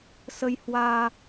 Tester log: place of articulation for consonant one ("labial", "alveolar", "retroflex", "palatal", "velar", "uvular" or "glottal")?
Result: alveolar